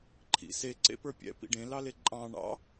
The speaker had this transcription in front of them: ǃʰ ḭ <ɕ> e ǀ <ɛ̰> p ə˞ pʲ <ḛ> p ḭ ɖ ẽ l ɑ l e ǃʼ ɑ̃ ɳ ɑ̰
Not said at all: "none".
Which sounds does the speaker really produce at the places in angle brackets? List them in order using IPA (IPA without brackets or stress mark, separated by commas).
s, ḛ, ɛ̰